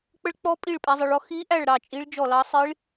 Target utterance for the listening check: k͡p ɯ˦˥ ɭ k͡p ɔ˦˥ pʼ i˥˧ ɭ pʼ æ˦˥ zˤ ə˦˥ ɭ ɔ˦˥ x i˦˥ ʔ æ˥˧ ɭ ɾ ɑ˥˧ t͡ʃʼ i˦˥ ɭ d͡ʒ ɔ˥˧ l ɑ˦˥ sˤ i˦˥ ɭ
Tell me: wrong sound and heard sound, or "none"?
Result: ɯ˦˥ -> ə˦˥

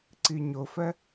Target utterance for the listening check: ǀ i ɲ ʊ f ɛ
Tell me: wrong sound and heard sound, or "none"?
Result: none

